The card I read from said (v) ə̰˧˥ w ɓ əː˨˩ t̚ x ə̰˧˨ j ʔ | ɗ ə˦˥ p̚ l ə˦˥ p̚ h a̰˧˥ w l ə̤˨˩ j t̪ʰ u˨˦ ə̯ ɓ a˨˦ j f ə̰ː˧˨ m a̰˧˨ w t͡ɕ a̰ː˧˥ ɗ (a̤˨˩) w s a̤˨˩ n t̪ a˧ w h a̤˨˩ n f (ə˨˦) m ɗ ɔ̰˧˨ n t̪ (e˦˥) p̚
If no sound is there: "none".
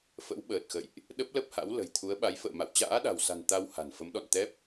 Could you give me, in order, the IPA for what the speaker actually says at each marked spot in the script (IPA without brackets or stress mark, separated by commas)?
f, a̤˨˩, ə˨˦, ɛ˦˥